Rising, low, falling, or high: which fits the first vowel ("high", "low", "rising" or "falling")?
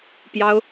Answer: high